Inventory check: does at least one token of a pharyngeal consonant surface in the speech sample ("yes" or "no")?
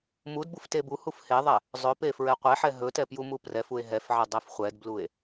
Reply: yes